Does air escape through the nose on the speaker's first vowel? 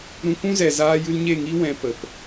yes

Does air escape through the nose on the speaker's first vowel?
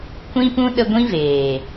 yes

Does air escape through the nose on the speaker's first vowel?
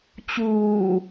no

